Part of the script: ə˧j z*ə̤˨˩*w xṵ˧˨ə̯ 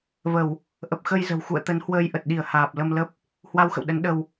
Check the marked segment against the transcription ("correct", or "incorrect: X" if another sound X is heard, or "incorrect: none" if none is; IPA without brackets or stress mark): correct